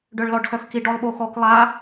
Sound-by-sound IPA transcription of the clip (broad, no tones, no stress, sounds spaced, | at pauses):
ɖ œ ɭ l ɔ ɖ x œ x k i ɖ ɔ lˠ ɓ o x ɔ k lˠ a